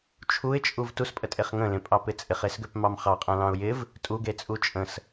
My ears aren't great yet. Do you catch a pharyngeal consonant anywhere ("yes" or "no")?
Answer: no